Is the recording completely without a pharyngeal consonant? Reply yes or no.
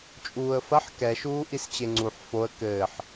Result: no